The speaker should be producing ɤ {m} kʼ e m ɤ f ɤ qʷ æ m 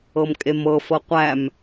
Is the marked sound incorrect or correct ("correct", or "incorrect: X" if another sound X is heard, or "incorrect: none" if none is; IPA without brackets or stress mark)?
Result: correct